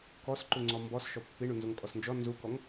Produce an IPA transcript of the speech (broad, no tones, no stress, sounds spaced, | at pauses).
k ɔ s ǃ u ŋ͡ǀ ɔ m b ɔ s ʃ ɔ pː i ɳ u n z u ŋ kʼ ɔ s n d͡ʒ ɔ n z u k ɔ ŋ